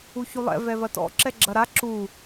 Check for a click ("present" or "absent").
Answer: present